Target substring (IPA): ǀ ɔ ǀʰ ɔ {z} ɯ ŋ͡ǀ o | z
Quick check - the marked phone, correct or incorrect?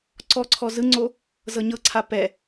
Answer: correct